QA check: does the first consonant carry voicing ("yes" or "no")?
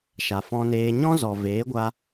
no